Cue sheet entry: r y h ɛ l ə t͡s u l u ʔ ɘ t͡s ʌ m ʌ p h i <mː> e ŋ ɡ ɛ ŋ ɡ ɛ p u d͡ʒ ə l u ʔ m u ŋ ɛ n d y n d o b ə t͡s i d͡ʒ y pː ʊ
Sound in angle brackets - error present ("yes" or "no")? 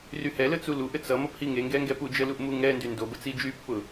yes